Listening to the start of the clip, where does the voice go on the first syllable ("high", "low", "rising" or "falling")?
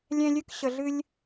high